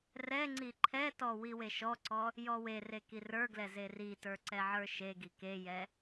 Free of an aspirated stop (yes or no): no